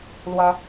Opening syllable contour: high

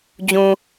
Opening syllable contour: low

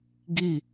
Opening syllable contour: falling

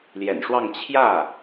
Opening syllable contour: low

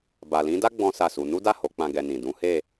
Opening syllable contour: low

